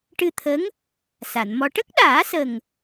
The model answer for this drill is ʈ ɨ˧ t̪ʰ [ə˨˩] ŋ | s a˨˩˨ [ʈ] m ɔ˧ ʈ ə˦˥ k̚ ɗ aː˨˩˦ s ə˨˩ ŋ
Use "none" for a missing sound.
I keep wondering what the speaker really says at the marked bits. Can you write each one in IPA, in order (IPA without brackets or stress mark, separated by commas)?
ə˧˥, n